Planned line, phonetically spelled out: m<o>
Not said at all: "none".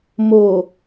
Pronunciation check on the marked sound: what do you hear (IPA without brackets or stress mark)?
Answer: o